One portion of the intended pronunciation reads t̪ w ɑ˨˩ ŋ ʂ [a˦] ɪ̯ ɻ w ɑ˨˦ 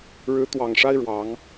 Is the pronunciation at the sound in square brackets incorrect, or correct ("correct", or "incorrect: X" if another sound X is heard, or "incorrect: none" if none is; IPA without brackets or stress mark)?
correct